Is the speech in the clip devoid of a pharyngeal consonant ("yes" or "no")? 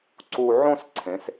no